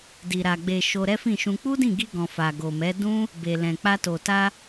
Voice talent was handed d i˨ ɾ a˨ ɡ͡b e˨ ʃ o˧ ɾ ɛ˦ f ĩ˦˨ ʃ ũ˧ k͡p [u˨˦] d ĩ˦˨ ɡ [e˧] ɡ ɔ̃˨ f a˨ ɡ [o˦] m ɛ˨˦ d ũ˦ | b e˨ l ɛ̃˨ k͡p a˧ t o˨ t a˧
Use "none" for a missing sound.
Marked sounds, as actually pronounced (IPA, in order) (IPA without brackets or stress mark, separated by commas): u˦, i˧, o˨